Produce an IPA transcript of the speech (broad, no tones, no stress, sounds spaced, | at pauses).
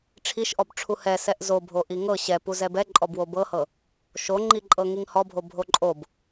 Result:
ʈ͡ʂʰ i ʃ ʔ ɔ b ʈ͡ʂʰ u h ɛ s ɛ ʔ z o bʱ o ʔ i ŋ ɤ ɕ ɛ p u z ɛ b ɛ ǃʼ ɔ b w o b ɤ h ɤ | ʃ o ŋ͡ǃ i ǃʼ ɤ ŋ i ŋ h ɔ bʱ o bʱ o ǃʼ o b